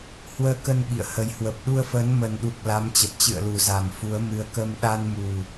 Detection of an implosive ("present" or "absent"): present